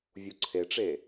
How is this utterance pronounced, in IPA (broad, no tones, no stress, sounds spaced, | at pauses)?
vʲ u ǀʰ e ʈ͡ʂ e